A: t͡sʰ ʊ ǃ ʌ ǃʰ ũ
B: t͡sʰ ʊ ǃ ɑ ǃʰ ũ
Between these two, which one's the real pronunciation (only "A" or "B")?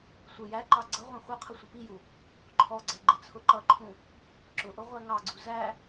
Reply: A